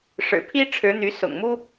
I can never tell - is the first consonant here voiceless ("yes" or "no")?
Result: yes